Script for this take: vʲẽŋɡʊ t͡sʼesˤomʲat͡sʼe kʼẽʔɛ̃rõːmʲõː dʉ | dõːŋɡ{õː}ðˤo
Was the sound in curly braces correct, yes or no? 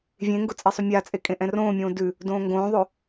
yes